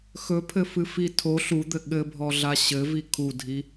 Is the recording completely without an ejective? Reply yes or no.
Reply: yes